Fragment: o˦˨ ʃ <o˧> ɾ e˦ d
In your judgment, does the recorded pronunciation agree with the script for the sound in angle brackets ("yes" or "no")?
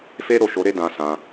yes